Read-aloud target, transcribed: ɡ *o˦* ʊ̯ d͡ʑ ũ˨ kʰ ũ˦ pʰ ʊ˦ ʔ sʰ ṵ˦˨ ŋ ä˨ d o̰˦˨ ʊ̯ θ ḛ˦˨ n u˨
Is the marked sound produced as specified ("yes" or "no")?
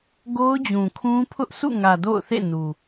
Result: yes